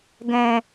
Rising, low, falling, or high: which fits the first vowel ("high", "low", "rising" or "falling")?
low